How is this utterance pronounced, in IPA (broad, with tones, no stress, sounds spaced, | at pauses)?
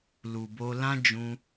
l u˨ b o˧ l ã˦ d͡ʒ ũ˧